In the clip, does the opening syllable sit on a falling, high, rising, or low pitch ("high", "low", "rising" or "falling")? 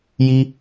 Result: high